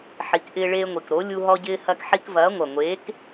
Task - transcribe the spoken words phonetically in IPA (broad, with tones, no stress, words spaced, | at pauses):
ħi˨˥kʔɪː˦ɭeː˦ŋʷi˨˩k ɾo˨˥ lʲu˦ɦɔ˦ɟɪː˦ hɐ˦kħi˦k vɐː˨˥ŋʷɐ˨˩ŋʷeː˨˥k